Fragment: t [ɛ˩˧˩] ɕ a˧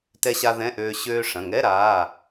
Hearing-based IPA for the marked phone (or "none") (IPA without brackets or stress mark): ɛ˧